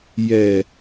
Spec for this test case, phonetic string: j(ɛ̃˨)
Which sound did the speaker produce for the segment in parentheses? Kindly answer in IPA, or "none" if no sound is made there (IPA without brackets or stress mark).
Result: ɛ˨